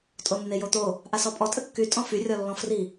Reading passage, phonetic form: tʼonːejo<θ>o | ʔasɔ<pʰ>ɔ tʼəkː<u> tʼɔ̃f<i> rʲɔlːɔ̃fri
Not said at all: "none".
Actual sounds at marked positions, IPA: t̪, pʼ, y, y

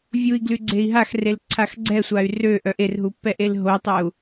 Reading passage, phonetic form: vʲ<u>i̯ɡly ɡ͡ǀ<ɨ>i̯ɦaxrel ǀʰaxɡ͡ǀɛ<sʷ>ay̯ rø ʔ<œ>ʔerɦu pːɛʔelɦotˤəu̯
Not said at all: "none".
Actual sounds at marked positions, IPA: u, e, sʷ, œ

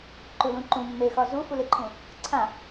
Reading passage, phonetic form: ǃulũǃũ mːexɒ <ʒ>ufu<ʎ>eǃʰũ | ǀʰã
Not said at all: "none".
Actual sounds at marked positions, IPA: z, l

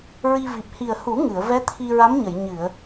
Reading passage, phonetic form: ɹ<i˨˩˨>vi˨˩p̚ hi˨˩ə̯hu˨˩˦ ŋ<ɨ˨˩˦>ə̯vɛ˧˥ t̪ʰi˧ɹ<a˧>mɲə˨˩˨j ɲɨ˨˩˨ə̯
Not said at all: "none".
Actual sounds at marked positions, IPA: i˧, ɨ˨˩˨, a˧˥

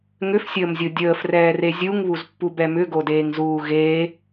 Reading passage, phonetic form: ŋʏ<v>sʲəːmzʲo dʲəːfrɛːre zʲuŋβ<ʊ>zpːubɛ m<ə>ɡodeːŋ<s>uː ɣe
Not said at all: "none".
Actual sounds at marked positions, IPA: f, u, ʏ, z

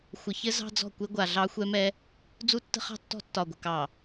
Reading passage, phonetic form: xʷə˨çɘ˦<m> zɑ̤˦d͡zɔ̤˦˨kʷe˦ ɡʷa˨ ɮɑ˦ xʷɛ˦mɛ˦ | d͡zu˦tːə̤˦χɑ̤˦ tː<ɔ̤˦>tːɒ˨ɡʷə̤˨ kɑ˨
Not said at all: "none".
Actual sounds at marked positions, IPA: none, ɔ̤˦

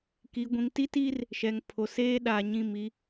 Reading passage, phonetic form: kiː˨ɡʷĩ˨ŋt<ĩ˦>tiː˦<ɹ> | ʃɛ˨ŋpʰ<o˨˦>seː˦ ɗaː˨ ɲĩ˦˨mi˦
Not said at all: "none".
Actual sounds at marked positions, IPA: i˦, r, o˨

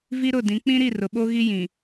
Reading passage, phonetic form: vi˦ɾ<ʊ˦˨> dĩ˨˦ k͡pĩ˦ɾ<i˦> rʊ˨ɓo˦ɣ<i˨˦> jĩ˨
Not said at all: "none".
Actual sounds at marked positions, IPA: ʊ˦˨, i˦˨, i˦

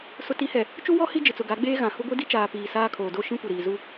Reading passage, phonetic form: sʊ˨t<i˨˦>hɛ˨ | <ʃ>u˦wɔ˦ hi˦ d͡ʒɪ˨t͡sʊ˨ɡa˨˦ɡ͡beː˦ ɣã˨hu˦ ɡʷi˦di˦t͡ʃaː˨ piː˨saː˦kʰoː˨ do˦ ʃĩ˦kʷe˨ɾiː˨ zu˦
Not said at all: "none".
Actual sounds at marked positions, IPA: i˨˦, t͡ʃ

